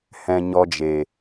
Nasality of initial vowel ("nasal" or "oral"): nasal